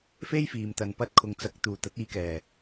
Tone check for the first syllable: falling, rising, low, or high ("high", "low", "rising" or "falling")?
high